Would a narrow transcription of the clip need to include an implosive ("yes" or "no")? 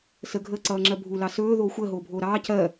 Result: no